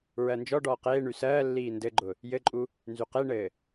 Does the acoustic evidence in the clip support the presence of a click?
yes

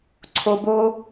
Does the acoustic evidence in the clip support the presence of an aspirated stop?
yes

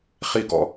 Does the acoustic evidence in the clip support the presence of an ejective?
no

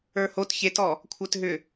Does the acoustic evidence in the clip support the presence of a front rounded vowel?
yes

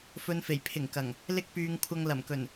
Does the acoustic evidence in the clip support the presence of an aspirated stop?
yes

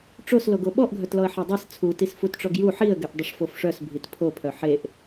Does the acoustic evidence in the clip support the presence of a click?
no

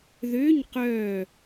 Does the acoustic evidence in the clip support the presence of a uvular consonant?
yes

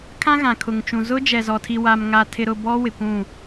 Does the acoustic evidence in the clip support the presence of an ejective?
no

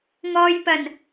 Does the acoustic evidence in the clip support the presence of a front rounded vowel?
no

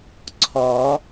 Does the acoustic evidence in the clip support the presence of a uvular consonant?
no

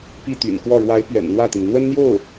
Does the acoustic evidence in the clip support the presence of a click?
no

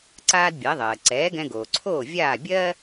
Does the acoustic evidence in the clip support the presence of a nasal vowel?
yes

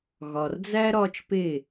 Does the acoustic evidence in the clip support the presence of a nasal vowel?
no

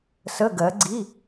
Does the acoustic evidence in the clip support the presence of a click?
yes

